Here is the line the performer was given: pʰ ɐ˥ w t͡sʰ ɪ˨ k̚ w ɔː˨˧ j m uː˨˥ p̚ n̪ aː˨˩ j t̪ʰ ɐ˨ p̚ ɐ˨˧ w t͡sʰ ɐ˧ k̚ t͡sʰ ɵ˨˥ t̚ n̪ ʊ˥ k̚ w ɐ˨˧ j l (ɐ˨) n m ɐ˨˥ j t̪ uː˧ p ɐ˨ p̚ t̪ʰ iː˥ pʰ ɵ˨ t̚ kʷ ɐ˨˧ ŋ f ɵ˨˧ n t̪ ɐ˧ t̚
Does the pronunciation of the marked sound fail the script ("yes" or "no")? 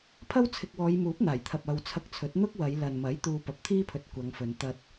no